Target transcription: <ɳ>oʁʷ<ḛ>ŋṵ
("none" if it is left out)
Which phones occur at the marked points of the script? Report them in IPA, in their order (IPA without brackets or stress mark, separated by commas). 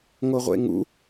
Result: ŋ, ḛ